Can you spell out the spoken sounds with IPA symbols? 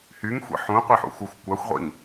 h y ŋ xʷ ḭ ħ ũ qʷ i ħ ṵ x u xʷ kʷ a xʷ ʁʷ ḭ ŋ

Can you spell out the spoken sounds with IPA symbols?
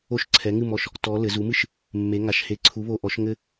o˦ ʃ ǀʰ ɛ˩˥ ŋ ɨ˥˨ m ɔ˧˩ ʃ | t ɔ˩˧ l ɘ˩˧ z u˩˥ m ɨ˥˨ ʃ | mː e˩˧ ŋ a˩˧ ʃ h e˩˥ ǀʰ u˩˥ β o˧˩ ʔ ɔ˩˥ ʃ ŋ ɘ˦

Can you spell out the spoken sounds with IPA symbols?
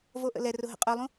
v o ʔ ə̰ l ɛ r ʊ ɦ ə̰ qʼ œ lˠ ũ

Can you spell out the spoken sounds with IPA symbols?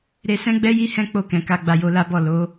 ɾ e˧ s ɛ̃˦ ɡ͡b ɛ˦ j i˦ h ɛ̃˦ k͡p o˦˨ k ɛ̃˧ k a˦ ɡ͡b a˧ j o˧ l a˦ b ɔ˦˨ l o˨˦

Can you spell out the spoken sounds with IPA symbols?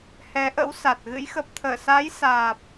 h ɛ˨˦ ʔ ə̰˧˥ w s a˨˩ t̚ ɣ ɨ̰˧˥ j x ə˨˩ p̚ t̪ʰ əː˧˩ s a˨˦ j s aː˨˩ p̚

